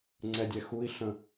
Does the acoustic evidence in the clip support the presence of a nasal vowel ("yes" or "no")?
yes